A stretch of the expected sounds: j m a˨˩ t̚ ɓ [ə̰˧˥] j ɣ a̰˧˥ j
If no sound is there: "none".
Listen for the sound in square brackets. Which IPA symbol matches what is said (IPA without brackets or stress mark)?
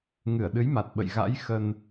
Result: ə̰˧˨